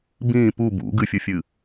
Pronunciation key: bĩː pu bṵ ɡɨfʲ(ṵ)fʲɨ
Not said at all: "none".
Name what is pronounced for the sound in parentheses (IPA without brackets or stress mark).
u